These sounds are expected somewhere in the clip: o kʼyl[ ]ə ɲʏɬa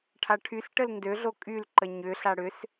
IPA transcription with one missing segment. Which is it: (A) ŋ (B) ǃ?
B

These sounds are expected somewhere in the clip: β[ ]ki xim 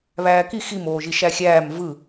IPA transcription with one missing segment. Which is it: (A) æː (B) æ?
A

